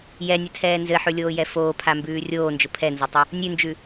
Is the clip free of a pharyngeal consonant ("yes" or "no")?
no